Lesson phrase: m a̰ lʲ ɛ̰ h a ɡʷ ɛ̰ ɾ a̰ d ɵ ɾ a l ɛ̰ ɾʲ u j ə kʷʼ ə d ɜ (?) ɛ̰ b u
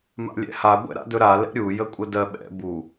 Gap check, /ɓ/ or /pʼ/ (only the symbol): ɓ